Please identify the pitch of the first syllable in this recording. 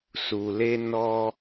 low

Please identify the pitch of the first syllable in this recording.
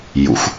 rising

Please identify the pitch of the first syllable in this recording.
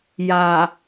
low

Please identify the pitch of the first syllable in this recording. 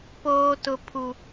high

